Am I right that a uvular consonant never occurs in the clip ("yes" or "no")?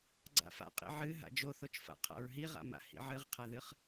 no